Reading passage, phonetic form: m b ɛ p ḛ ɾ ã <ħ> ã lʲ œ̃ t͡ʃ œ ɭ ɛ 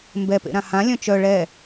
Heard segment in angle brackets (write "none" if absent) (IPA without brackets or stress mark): h